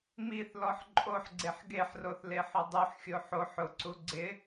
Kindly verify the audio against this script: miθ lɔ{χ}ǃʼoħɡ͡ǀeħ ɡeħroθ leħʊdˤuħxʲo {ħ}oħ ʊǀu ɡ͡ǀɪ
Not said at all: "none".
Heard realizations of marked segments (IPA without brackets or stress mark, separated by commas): ħ, ħ